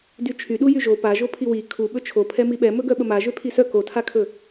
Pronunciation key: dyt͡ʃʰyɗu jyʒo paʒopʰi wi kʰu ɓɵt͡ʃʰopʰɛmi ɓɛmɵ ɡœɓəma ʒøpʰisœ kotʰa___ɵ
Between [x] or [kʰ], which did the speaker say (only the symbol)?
kʰ